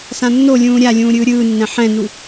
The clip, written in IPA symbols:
s ã nː o lʲ ũː ɾʲ a lʲ ũː ɾʲ ɯː ɾʲ ɯː nː ɛ̃ ħ ɛ̃ n u

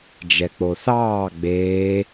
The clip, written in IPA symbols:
d͡ʒ ɛ k͡p o θ ɑː ɡ͡b eː

